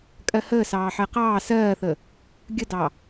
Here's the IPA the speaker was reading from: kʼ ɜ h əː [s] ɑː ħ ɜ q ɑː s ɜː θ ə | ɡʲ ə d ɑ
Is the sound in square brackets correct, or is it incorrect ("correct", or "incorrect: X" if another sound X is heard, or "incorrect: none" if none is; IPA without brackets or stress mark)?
correct